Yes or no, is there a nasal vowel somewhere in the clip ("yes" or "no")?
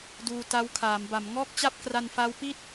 no